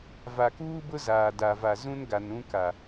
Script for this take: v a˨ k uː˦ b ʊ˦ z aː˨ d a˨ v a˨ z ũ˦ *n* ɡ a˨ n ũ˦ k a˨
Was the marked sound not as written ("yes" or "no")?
no